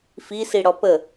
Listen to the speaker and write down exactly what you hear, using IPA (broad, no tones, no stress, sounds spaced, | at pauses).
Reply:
f i s i ɽ ɔ p ə